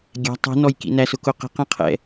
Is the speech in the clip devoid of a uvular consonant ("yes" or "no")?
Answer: no